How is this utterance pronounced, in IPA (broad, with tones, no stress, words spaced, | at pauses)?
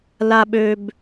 la˨ɓø˨b